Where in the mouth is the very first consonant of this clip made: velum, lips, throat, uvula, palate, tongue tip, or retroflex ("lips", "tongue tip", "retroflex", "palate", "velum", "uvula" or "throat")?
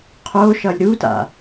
uvula